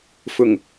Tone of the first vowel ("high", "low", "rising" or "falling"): low